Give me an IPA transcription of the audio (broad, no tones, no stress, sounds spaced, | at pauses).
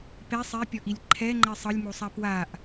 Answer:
p ɛ sˤ e pʲ ɔ ʔ i lʲ ǃʰ ɛ ŋ͡ǃ ɛ sˤ ɤ lʲ m o sˤ a p w a ʔ